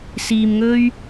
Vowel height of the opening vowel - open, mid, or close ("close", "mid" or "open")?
close